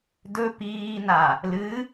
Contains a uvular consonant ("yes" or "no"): no